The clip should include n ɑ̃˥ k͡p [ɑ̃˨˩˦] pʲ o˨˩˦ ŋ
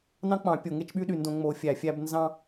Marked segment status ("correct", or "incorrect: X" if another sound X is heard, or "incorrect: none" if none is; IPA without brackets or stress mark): correct